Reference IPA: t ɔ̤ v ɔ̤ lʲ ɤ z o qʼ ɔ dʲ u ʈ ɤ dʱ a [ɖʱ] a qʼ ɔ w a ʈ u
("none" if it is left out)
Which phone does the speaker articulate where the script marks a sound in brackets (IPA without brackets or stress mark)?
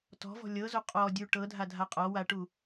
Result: dʱ